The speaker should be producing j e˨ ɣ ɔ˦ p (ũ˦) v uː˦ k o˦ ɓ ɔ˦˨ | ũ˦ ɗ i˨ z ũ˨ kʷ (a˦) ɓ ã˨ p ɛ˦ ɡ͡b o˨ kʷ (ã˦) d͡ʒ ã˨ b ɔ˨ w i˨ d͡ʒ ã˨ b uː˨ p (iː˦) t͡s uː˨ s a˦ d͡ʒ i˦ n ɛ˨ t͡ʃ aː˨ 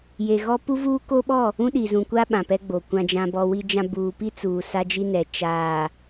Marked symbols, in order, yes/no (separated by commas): no, yes, no, no